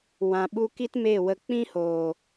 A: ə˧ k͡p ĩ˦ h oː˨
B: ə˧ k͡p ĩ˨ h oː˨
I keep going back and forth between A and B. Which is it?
A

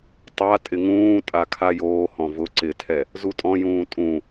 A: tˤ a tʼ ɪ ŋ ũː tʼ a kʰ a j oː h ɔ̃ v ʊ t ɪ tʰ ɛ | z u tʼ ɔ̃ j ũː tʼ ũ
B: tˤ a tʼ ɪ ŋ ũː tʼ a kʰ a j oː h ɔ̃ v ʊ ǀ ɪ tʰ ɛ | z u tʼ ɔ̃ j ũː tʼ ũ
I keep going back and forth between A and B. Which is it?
B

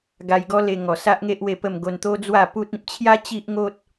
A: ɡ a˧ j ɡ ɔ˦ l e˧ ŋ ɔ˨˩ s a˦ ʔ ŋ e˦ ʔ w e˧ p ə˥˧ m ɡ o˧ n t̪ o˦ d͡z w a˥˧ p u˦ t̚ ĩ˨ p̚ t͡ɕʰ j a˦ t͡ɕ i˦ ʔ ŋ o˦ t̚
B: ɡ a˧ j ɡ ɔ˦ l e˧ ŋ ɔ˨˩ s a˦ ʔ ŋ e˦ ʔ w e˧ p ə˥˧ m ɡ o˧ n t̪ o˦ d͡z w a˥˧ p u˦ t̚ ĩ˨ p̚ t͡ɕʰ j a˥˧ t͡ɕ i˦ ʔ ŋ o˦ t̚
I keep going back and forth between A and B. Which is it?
A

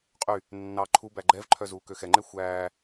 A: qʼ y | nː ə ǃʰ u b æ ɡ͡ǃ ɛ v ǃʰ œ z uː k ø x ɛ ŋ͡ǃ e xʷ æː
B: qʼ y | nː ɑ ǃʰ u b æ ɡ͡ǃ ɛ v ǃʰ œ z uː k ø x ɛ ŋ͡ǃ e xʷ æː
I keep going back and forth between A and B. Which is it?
B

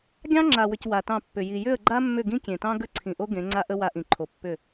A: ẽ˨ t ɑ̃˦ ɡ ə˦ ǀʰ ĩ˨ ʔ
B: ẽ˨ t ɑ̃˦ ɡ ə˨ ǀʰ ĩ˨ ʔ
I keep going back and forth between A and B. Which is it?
A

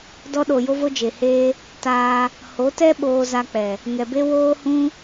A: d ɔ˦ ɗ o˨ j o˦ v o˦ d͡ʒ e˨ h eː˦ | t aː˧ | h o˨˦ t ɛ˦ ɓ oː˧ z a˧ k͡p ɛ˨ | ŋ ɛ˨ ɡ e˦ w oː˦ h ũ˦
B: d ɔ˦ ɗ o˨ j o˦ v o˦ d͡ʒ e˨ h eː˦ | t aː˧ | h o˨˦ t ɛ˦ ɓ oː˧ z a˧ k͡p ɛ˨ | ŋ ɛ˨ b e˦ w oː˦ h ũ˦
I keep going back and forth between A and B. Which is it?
B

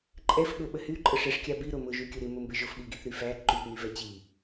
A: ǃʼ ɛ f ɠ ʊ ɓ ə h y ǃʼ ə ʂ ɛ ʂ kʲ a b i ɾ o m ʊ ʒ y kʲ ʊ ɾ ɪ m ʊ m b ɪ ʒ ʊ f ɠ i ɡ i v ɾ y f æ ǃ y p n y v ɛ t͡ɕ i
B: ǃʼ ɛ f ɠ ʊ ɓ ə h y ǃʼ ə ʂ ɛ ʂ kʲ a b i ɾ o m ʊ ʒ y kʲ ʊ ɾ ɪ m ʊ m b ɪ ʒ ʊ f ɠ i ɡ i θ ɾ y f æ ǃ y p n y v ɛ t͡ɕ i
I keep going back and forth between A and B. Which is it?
B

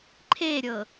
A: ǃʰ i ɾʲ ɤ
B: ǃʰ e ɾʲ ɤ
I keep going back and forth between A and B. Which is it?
B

